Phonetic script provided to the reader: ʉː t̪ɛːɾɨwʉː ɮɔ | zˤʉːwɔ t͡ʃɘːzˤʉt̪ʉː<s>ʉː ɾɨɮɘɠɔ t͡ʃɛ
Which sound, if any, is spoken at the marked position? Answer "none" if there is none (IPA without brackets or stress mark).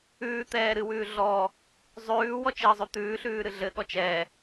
ɬ